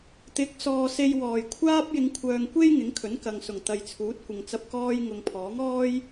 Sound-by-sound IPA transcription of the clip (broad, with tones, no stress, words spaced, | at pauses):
t̪ɪ˨˥k̚sɔː˨ se˧jwɔː˨˩jkʷʰaː˥p̚ jɪ˨˧ŋkʷʰœː˨ŋkʷe˥j ŋɪ˨˥ŋkʰɵ˨˥nkɐ˨ŋsʊ˨˩ŋ t̪ɐ˨jt͡sʰuː˨˥t̚ kʷɪ˨ŋt͡sɐ˧p̚kɔː˥j ŋʊ˨ŋpʰɔː˨˥ŋɔː˥j